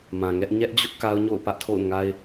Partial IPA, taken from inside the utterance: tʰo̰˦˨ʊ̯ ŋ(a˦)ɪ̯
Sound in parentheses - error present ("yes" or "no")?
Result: no